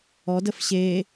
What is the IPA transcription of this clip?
ɔdəf ɕe

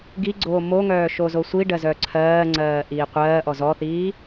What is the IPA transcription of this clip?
ɡiɡ͡ǀoː moŋœː ʃozosʷiɖɜ zœǀʰɜːŋ͡ǀɜː ʔiːqʷɜːʔɔ zɔθiː

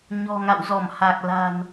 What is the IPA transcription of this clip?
ɲɔ̤˨˩ŋa̰˧˨wzɔ˧˩m ha˨˩k̚la̤˨˩n

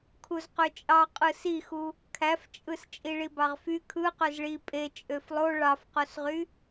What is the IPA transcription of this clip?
kʰuzqøt͡ʃʼɑ qʼɯsixu | kʰæft͡ʃʼɯs t͡ʃʼiɭibɑʁfy kʰɯ qøzɭi pʼe t͡ʃʼøflˠo ɭɑfqosʁy

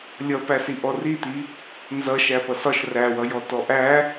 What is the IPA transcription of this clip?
lʲʌpæsi ʔɔrit̪i | nzʌ ʃæpʌsɒʃ ræwʌjɔ tɔʔæ

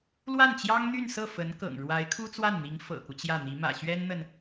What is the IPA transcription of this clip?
lwa˥˩nt͡ɕjɑ˥ŋn̪y˥˧nsɤ˥˩ fə˧˥nkɤ̰˨˩ŋ ɻwa˧˥ɪ̯kʰu˥t͡swa˥˩nn̪i˧˥ŋ fɤ̰˨˩ku˦t͡ɕjä˥˩n̪i˧˥ mä̰˨˩ɕɥɛ˥nn̪ə˨n

